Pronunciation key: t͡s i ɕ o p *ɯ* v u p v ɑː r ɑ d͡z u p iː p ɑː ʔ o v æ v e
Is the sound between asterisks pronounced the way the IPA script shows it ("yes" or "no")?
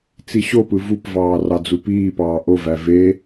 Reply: yes